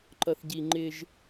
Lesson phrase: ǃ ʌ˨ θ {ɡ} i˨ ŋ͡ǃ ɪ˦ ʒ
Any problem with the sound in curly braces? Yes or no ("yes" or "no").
yes